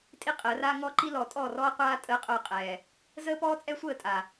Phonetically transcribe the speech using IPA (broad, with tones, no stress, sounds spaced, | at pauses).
tʼ i˦ qʼ əː˨˦ r aː˦ ŋ ɔ˦ ǃ i˦ l ɔ˨ tʼ ɔ˦˨ r ɔː˦ qʷ aː˦ tʼ əː˦ qʼ œ˦˨ qʼ ɛː˨ | z əː˦ p ɔː˦ t͡sʼ ɛ˦ sʷ əː˦˨ tʼ a˨